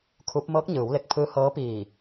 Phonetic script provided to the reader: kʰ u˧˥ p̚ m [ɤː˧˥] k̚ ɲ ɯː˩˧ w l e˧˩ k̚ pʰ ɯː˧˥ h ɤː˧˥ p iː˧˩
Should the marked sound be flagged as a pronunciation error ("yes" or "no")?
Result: no